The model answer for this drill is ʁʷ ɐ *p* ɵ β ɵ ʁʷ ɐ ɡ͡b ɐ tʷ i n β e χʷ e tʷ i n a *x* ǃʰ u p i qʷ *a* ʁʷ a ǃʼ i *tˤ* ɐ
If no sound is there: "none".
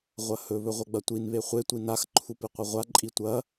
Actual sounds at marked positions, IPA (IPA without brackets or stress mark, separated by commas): h, x, ɐ, tʷ